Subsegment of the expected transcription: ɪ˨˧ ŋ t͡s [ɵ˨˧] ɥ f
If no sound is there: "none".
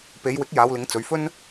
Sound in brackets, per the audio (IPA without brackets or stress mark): ɵ˨˧